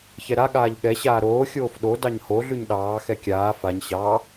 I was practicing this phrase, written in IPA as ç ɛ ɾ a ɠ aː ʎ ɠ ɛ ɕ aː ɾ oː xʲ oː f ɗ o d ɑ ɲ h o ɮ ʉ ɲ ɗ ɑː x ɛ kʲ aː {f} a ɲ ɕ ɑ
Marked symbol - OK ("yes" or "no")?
yes